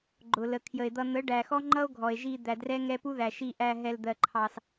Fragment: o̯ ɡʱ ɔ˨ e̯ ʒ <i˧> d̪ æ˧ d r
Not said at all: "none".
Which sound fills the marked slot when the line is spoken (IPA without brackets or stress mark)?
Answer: i˧